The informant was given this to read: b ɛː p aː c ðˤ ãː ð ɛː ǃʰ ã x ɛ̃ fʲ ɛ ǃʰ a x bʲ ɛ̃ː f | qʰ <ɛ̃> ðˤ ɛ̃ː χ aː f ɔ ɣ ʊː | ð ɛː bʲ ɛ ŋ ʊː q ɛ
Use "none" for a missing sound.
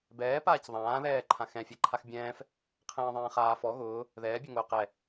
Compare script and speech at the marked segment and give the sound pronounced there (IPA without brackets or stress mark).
ɛ̃ː